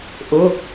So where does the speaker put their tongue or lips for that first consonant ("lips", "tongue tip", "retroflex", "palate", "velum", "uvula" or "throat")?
throat